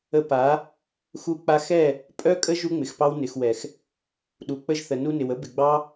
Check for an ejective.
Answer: present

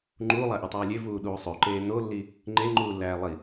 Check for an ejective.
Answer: absent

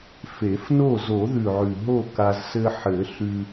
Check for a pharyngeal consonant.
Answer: present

